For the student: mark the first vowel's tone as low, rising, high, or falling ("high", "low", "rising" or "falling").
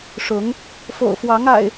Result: rising